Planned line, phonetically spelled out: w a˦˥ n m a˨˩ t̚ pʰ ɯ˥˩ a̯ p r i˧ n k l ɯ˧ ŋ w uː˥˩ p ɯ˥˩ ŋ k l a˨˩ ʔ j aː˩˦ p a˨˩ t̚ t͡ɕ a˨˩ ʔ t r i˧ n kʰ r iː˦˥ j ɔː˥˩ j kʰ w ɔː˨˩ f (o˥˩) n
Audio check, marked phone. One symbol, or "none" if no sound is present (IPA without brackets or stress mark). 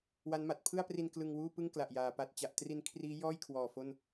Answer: o˥˩